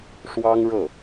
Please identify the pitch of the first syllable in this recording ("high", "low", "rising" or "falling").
high